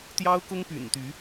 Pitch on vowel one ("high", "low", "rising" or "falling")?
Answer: high